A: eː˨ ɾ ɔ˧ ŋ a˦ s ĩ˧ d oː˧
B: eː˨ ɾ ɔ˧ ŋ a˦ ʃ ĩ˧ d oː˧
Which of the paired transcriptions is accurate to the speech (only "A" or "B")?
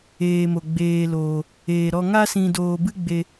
A